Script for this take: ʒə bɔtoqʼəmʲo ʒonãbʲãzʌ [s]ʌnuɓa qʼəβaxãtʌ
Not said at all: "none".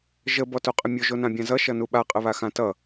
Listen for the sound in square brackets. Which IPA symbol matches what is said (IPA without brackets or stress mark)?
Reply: ʃ